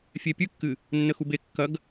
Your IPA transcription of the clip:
fʲepʲɨkːɨ | nːəxube kːɐɡ

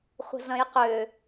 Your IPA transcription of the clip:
χʷə̤zɐ̃jqø

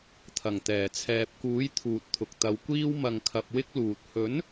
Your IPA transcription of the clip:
t̪ʰɐ˨˩ŋt̪ɛː˨˩ t͡sʰɛː˨p̚kuː˨˥j t̪ʰuː˨t̚t̪ʰʊ˨k̚t̪ɐ˨˧wkʷiː˥w mɐ˨ŋkʰɐ˨p̚ wɪ˥k̚luː˨t̚ hɵ˨˥n

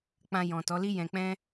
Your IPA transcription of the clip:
k͡pã˧ jɔ̃˨ tɔ˨˦li˦ jɛ̃˧k͡pɛ̃˦

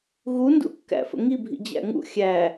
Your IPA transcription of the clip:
ɣundṵkːæ̰ fə̰ŋibʱḭ d͡ʑæ̰ŋṵ xʲæ

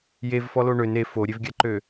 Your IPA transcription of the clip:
jevfɔlo ɳøn e foɾʲevɡʲaǃø

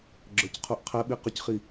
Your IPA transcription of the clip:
ɡ͡ǁə˞cqʰuʔqʰɛɓi qʊcχi

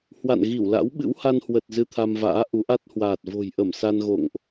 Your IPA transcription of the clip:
hwa̰˧˨nɣi˧˩wla̰˧˥w ɓɨ̰˧˥wha˧nhwə˨˩t̚ zɨ˧t̪ʰa˧mva̰ː˧˥ ʔu˨˦ʔa˦˥t̚hwaː˨˩t̚ vo̤˨˩jʔə˧˩m sa˧nɣo̰˧˨ŋʔ

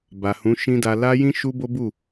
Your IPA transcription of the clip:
ba˨hũ˨˦ʃĩ˦da˧ la˦jĩ˦ ʃu˦bo˦bu˦˨

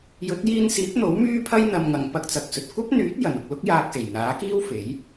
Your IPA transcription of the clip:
jɵ˨˥t̚jiː˧nsiː˨˥p̚n̪o˨˥w myː˥pʰɐ˥j n̪ɐ˨mŋɐ˨˩ŋ pɐ˧k̚t͡sɐ˨k̚sɵ˨t̚ kʷɐ˥p̚n̪yː˨˥t̚ jɐ˨˩nʊ˨k̚ lʊ˥k̚jaː˧k̚se˨˩jn̪aː˨˥ kiː˥wfe˨˥j

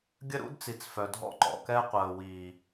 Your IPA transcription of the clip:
ɡʲə˦ɾṵ˦dt͡si˨t͡s fœ˨dʱɔ̰˦ ǃɔ̰˨kɛ˦qʷəː˨ wi˨

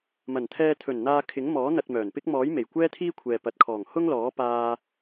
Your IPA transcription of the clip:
mɐ˨˩nt̪ʰɛː˧t̪ʰɵ˨˩nn̪aː˧ kʰɪ˨˥ŋmɔː˨˥ n̪ɐ˧t̚mœː˨˩npɪ˥k̚ mɔː˨˥j me˨˩jkʷɛː˥t̪ʰiː˥kʷʰɛː˨ pɐ˨t̚kʰɔː˨˩ŋ hʊ˥ŋlɔː˨˥paː˧

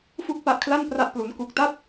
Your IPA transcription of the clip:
fu˥˩k̚pa˦˥ʔkʰla˥˩n pra˥˩ʔplu˦˥nku˦˥k̚ ta˥˩t̚

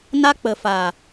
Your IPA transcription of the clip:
na˦k͡pə˨faː˨

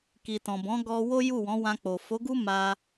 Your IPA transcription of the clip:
ki˨tɔ̃˨bɔ̃˨˦ ɡɔ˧wo˦ ju˦˨wɔ̃˨˦wã˧k͡po˨ fo˨˦ɡu˦ ma˧

